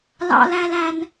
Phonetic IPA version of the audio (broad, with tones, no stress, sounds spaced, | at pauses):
l ɑ̰˦ l æ˦ l æ˦ n